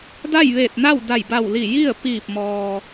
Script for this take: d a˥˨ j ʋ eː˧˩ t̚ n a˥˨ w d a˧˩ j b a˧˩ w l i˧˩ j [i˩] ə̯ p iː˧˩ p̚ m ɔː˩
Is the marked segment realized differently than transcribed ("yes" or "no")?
yes